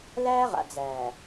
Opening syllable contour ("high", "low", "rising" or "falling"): high